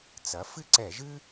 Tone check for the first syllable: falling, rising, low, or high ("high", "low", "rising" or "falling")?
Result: rising